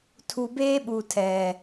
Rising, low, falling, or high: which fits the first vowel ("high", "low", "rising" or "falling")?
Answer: low